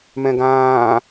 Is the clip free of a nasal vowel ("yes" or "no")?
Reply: no